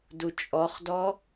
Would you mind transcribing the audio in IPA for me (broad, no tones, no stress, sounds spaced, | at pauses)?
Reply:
d u t͡ʃʼ ɔ χ d ɔ